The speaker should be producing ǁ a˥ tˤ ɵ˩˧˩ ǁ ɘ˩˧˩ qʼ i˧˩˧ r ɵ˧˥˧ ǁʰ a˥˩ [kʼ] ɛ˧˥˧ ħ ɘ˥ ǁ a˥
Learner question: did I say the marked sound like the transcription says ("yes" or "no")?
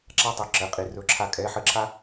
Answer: yes